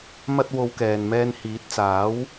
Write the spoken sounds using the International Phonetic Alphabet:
m ɐ˧ t̚ w o˨˧ w k ɛː˨ n m ɛː˧ n h iː˨˥ t̚ t͡s aː˨˥ w

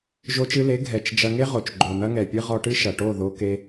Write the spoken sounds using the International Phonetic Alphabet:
ʒ o˧ t͡ʃ ɨ˧ l e˨˦ ɡʱ ɛ˨ t͡ʃ d͡ʒ ɐ˧ ŋ e˦ ʁ o˨ t͡ʃ ɡ͡ǃ o˨ n̪ ɐ˦ ŋ ɛ˨ pʲ ɨ˦ ʁ ɔ˧ ʈ ɨ˦ ʃ ɐ˨ ʈ o˦˨ ð o˧ k e˧

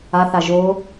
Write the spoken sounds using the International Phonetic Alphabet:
a θ a ʒ o

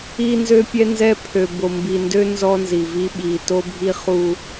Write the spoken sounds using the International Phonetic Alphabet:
i˦ n z ø˦ pʲ ɛ˦ n z ɛ˦ pʰ ø˨ b o˨ m b i˨ n d ø˦ n z ɔ˦ n z i˨ v i˦ ɓ i˨ t o˦ bʱ i˦ χ u˦

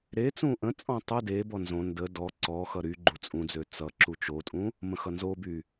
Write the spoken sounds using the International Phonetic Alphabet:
ɾ e t͡s ũ ʔ ə̃ t͡sʼ ɔ̃ tˤ ʌ d e b ɔ n z õ n d ə d ɔ ǀ ɔ x ʌ ɾ y ɡ͡ǃ u t͡sʼ ũ d͡z ø t͡s ʌ ǁ u t͡ʃ o tʼ ũ | m ə̃ x ʌ n z o b y

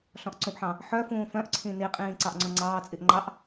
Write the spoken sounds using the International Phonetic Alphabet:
ɬ ɔ̃ ʔ ǀ ũ ʔ ħ ɑ̃ | ħ œ f ũː f œ̃ ʔ ǀʰ ĩ n i qʼ ĩː ǀ ɑ ʔ ŋ͡ǀ ɔ̃ ŋ͡ǀ ɑː t͡sʼ i ʔ ŋ͡ǃ ɑ ʔ

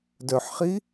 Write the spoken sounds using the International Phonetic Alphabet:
d œ ħ χ i

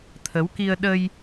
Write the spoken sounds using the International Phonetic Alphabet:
t̪ʰ ə˨˦ w k i˧ ə̯ ɗ ə˧ j

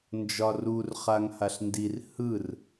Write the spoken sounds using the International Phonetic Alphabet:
n d͡ʒ ɒ r u r χ a ŋ h a ɬ n d i r h ɯ r

